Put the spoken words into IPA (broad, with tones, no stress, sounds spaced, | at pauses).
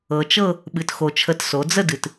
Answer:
ɤ˩ t͡ʃ ɤ˥˨ | ɓ ɨ˩ t x o˩ t͡ʃʰ ə˩˥ t s o˩˧ d͡z ə˥˨ d ɨ˩ t